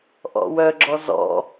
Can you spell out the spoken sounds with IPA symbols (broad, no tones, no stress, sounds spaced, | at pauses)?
ʔ ɔ̰ w œ ɡ͡ǁ ɔ z ɔ̰